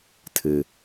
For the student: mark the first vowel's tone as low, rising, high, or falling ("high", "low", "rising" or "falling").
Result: low